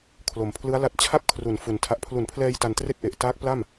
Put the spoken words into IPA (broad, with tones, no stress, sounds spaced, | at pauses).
kʰ l o˨˩ m pʰ l ɯ˦˥ a̯ l a˦˥ t̚ t͡ɕʰ a˥˩ p̚ kʰ r u˩˦ n f u˨˩ n tʰ a˨˩ ʔ pʰ l u˩˦ n pʰ l ɛː˧ j t a˧ n t r e˥˩ k̚ ʔ e˨˩ ʔ t aː˦˥ k̚ p l a˥˩ m